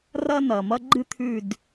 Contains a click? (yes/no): yes